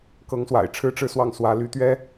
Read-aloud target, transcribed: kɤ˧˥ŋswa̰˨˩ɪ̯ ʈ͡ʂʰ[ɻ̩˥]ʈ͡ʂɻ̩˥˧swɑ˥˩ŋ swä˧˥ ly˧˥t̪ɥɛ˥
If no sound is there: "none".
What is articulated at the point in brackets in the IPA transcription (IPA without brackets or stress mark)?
ɻ̩˥